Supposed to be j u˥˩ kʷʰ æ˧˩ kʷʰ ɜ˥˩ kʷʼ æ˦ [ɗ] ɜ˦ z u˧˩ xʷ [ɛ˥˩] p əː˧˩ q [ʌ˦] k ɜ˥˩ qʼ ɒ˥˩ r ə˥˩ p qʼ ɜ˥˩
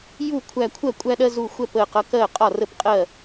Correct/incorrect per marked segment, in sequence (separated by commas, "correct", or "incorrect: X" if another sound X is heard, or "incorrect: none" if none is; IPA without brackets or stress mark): correct, correct, correct